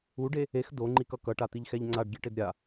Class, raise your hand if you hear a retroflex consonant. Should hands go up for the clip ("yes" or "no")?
yes